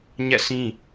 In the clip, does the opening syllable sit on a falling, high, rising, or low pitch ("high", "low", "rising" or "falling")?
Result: falling